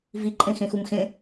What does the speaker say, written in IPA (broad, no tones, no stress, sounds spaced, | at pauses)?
v i ǃʼ ẽ x ẽ x u m x ẽ